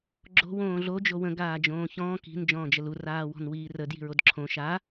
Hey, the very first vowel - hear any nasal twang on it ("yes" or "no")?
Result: no